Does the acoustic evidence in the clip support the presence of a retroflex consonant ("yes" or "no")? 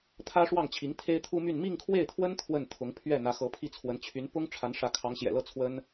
yes